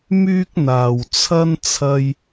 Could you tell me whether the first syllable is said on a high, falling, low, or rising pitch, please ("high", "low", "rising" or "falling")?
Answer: high